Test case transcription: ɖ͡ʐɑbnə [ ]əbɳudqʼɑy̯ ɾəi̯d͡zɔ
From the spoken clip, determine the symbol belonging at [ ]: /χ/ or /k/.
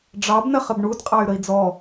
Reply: χ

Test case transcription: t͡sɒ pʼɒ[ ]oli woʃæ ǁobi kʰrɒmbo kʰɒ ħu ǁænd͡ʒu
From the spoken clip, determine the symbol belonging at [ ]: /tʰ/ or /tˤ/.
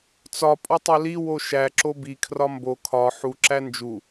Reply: tˤ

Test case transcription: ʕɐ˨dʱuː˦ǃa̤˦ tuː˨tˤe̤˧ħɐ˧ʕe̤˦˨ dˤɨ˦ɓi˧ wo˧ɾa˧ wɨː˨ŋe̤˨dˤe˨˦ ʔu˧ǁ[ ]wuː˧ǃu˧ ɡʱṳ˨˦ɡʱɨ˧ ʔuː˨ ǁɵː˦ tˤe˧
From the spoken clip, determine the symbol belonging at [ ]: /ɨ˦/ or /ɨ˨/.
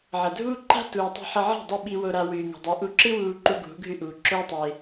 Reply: ɨ˦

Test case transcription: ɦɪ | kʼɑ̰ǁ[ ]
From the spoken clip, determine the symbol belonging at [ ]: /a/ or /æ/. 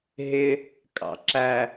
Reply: æ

